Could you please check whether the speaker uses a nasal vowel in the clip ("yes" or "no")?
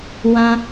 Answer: yes